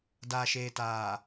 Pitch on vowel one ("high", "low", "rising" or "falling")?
low